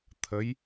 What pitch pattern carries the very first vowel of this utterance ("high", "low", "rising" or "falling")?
rising